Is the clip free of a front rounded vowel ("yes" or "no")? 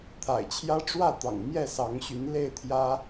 no